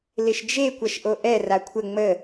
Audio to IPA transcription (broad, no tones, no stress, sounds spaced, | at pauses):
l ɪ ʃ d͡ʒ e kʷ ɐ ʃ ʔ o ʔ ɛ r a kʷʰ ə ŋ͡m ə